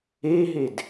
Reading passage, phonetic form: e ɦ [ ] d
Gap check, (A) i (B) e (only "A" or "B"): B